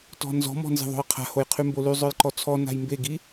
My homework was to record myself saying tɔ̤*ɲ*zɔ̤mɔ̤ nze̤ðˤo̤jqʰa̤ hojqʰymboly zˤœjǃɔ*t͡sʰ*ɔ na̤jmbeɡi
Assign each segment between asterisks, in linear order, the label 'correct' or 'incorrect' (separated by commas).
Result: incorrect, correct